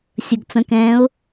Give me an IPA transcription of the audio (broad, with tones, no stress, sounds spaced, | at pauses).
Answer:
sʲ ə˨ ɡ t͡s ə̃˨˦ k ɛ̃ː˨˦ ʊ̯